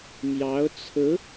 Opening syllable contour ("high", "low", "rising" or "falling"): rising